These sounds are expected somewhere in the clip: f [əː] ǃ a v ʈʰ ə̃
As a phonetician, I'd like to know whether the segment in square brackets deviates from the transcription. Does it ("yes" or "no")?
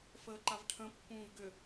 no